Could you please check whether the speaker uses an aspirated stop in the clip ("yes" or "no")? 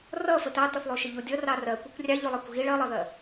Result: no